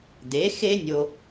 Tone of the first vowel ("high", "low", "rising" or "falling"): rising